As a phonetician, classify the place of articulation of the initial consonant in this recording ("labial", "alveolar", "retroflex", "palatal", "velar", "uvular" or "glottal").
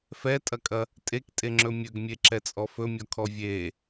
labial